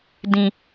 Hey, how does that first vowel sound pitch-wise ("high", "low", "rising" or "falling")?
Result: low